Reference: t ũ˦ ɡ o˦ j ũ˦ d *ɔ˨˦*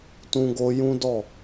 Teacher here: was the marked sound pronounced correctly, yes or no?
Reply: no